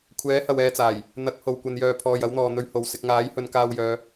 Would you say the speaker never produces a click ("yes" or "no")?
yes